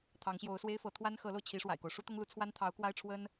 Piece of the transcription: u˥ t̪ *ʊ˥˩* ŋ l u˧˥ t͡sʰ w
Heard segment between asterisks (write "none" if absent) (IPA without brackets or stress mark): ʊ˥